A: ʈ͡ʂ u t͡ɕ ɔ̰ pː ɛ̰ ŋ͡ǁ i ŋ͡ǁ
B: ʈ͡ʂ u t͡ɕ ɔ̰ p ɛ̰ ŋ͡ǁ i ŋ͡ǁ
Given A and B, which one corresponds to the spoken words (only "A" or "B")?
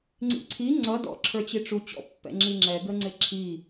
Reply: A